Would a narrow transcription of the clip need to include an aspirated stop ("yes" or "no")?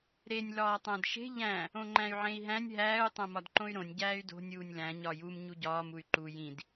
no